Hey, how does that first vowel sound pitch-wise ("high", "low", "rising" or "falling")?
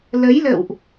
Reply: rising